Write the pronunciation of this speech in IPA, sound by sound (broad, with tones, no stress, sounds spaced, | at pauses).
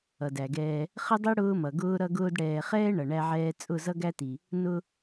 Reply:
ʌ˨ d æ˨ ɡ ɛː˦ | χ ə˦ dˤ i˦ ɽ ʊː˦ m ʌ˨ ɡ ʊː˦ ɾ ʌ˦ ɡ ʊː˦ d ɽ ɛː˨ χ ɛː˦ ɳ ʌ˨ ɳ æ˦ ʕ ɛː˦ t͡sʼ ʊ˦˨ z ʌ˦ ɡ æ˦ t i˨ | n ʊ˦